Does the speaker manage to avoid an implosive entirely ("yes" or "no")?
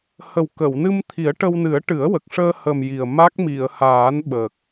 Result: no